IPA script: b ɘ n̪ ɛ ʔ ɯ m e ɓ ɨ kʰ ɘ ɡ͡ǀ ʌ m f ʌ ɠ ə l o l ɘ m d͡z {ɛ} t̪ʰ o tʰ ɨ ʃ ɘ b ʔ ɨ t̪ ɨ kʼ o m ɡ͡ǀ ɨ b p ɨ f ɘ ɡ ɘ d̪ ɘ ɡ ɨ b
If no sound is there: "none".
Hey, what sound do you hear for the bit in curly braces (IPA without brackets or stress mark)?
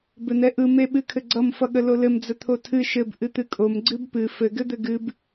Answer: ə